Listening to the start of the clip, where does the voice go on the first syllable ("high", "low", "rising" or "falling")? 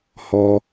low